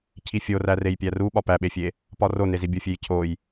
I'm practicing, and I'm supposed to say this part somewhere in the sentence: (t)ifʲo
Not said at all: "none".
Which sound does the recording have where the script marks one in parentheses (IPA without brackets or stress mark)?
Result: cʰ